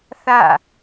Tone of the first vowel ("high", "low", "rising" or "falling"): falling